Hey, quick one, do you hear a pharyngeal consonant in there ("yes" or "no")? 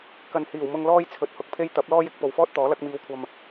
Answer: no